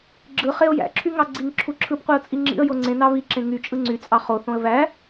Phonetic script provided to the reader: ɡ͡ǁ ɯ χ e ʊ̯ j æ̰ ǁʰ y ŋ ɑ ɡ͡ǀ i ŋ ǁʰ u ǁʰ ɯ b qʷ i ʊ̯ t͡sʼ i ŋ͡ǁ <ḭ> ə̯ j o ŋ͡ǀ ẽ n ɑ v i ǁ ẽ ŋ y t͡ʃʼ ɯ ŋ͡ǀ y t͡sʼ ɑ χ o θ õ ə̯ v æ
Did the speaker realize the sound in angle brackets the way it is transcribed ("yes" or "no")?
yes